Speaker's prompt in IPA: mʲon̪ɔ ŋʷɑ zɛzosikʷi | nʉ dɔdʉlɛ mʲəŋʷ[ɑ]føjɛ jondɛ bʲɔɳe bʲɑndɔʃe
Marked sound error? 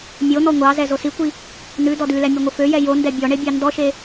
yes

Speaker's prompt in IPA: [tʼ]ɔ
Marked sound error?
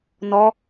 yes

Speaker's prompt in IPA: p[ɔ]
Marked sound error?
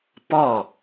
no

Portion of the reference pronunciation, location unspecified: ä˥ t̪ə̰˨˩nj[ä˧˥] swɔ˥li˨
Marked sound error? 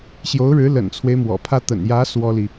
no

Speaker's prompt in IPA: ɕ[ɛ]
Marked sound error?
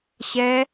no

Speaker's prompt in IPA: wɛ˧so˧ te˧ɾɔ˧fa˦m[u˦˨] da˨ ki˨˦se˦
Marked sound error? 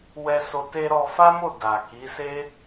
yes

